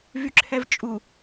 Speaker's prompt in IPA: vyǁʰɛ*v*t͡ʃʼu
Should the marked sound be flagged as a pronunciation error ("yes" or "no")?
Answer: no